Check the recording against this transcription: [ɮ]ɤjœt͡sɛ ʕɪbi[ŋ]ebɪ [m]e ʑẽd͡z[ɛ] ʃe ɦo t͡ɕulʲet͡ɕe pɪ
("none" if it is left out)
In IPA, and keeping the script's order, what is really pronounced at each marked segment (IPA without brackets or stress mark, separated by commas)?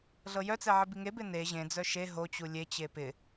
ɮ, ŋ, n, œ